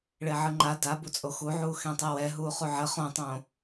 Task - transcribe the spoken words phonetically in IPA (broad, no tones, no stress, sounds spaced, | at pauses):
ɭ e ʕ ɯ ŋ͡ǃ a d a b u t͡sʼ o x u ʕ uː x ẽ tˤ e w ɛ ɦ uː χ u ʕ ə χ õ tˤ õː